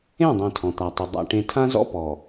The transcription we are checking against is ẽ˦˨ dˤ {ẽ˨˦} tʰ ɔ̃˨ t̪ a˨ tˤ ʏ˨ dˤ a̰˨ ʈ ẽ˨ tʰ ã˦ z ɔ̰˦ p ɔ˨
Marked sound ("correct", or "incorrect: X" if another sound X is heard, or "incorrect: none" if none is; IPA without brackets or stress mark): incorrect: ẽ˨